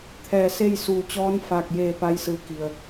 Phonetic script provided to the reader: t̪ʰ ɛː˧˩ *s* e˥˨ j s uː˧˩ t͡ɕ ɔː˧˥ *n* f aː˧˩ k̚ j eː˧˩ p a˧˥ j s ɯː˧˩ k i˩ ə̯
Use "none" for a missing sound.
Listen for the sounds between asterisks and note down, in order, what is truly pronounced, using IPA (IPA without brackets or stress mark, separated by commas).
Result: s, n